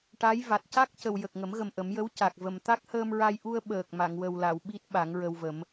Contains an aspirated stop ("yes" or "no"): no